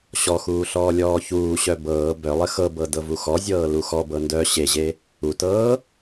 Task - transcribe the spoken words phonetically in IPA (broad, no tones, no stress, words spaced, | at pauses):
ɕɔxuː ɬɔːlʲɔːçuːɕœ bɤː bœlˠə xɤbɤ dɤvuxɔzʲɤː luxɔbɤ ndœ ɕeʑe | utɤː